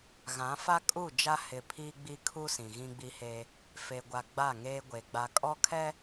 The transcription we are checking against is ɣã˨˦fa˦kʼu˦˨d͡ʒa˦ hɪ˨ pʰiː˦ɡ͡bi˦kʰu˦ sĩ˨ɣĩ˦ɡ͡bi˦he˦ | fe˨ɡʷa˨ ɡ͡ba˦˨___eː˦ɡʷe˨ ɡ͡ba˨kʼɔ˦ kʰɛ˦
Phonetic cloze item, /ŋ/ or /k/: ŋ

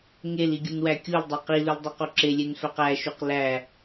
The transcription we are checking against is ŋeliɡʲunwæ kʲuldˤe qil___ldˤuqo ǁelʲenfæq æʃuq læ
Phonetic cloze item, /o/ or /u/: u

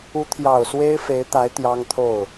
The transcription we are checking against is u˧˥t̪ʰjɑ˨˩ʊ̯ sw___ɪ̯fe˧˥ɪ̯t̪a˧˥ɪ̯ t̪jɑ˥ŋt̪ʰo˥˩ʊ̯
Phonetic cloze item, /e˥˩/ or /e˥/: e˥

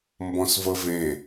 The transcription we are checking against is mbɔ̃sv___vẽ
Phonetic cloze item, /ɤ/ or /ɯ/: ɤ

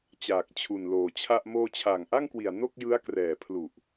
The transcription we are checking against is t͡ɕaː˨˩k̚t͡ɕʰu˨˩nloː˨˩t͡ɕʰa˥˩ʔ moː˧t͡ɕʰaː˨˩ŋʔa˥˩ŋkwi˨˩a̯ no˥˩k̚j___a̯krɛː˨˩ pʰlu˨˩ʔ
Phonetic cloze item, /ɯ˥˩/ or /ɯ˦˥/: ɯ˦˥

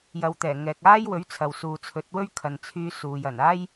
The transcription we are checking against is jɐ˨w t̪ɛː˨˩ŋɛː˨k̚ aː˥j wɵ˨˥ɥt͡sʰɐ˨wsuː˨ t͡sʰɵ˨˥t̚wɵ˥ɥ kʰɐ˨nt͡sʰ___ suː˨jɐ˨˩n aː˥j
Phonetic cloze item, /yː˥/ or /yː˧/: yː˧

